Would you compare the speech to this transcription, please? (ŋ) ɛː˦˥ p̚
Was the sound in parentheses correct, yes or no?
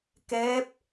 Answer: no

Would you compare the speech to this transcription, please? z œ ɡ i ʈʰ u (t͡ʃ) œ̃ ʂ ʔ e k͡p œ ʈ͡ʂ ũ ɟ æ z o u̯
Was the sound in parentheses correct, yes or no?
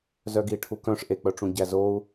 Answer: no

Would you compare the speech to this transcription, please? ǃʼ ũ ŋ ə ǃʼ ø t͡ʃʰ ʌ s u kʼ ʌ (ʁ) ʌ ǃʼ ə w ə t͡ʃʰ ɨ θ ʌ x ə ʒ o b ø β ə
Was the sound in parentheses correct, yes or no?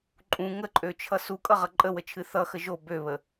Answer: yes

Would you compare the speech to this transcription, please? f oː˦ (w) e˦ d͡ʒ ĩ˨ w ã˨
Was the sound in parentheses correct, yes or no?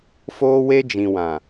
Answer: yes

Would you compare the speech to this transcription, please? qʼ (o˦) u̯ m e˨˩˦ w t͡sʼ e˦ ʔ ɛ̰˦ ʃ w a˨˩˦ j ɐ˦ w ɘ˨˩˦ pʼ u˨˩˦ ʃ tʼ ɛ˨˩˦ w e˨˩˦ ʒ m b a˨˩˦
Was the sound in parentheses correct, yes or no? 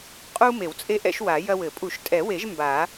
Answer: yes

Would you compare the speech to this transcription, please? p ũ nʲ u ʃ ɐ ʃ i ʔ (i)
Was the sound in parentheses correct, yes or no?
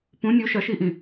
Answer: no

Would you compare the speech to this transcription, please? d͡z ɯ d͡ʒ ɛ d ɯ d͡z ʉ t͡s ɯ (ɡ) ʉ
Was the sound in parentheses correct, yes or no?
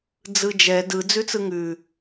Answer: no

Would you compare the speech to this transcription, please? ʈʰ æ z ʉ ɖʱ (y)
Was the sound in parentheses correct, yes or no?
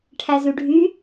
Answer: yes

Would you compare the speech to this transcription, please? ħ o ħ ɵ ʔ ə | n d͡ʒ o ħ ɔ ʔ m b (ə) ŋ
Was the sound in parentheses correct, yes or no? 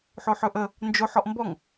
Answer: no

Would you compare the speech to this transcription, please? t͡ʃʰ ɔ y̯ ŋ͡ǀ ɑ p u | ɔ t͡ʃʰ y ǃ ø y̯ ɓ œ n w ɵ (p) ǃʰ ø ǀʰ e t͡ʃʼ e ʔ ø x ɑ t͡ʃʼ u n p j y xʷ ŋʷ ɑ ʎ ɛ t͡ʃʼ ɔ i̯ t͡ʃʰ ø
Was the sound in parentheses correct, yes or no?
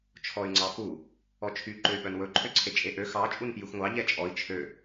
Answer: no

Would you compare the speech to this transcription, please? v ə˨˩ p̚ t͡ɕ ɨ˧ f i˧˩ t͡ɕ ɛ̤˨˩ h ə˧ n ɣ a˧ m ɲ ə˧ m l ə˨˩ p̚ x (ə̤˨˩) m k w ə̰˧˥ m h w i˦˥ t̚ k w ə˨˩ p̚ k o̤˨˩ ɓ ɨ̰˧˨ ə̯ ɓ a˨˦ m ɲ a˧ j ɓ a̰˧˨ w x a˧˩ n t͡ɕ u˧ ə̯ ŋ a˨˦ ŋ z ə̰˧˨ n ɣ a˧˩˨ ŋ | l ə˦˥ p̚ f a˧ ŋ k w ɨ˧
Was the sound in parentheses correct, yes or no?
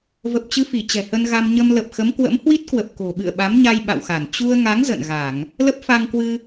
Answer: no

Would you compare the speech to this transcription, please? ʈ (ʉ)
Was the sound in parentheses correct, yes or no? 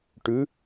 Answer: yes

